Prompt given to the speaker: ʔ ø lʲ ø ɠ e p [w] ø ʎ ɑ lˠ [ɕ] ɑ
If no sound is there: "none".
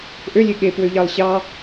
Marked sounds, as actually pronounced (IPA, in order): w, ɕ

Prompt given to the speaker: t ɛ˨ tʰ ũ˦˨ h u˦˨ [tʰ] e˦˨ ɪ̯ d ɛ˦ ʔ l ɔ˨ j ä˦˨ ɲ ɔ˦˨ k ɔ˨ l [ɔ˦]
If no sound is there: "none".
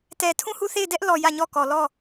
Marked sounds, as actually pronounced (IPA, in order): θ, ɔ˦˨

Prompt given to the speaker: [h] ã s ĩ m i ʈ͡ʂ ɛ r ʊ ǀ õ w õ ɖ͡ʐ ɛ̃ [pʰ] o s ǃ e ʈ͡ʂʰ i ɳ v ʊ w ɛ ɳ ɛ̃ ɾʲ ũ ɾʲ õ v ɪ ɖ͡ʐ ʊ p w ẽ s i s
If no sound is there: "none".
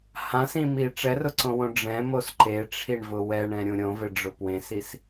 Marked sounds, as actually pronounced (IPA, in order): h, m

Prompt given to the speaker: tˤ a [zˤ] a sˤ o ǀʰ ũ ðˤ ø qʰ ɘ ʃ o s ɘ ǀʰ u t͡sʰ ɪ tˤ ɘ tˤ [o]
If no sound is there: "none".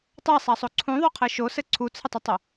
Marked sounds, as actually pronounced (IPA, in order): sˤ, o

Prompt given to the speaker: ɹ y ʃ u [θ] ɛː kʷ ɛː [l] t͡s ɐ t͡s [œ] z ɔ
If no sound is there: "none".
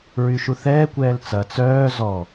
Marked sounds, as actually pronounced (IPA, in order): θ, l, œː

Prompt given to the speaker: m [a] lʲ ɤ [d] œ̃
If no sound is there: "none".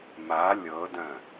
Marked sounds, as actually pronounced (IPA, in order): a, d

